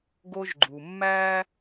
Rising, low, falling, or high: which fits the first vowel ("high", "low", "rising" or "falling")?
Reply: high